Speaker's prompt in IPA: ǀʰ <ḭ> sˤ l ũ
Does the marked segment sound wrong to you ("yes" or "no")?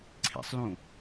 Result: no